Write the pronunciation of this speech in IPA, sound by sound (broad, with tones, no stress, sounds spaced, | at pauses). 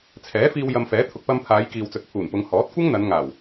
t͡sʰ ɛː˨˥ f iː˧ w j ɐ˧ m f ɛː˨˥ t̪ʰ ʊ˨ k̚ p ɐ˧ m pʰ aː˨˧ j k iː˨ w t͡s ɵ˨ t̚ pʰ uː˨˩ n p ʊ˨˧ ŋ h ɔː˨˥ t̚ kʷ ɐ˥ ŋ n̪ ɐ˨˧ n ŋ aː˨˩ w